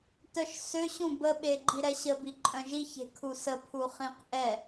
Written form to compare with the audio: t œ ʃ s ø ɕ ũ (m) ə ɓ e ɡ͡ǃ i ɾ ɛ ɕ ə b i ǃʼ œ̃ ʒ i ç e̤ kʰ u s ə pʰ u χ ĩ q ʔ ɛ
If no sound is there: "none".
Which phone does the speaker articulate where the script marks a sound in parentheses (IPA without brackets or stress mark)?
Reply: b